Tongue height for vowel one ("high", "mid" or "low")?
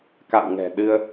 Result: low